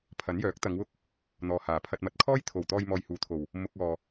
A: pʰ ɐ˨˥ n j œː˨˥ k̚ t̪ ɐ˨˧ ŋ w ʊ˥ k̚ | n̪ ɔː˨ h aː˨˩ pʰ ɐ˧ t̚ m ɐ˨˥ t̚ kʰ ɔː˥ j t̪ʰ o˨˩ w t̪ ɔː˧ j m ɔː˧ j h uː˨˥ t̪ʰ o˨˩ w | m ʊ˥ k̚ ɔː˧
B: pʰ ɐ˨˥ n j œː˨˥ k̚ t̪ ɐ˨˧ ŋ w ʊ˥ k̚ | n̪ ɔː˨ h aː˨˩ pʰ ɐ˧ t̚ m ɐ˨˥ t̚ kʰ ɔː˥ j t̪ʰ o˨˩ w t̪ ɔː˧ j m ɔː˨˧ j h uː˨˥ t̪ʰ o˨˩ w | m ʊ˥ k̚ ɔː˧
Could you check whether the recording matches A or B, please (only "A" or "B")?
A